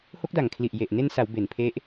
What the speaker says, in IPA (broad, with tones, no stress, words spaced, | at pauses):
ho˦˥k̚da˨˩ŋkʰli˨˩ʔ je˨˩ʔ ne˧nsa˩˦w be˩˦npʰe˦˥ʔ